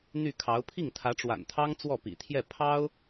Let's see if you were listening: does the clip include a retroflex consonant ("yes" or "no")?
yes